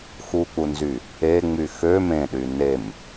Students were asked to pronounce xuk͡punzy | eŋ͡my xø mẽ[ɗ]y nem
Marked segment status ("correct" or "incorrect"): correct